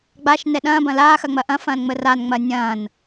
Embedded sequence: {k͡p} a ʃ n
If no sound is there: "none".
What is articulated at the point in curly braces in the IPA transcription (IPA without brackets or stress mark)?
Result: ɡ͡b